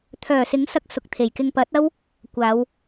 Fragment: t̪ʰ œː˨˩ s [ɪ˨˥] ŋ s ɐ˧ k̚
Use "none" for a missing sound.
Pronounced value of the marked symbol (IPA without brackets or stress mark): ɪ˨˥